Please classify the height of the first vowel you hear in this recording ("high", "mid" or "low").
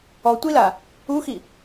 mid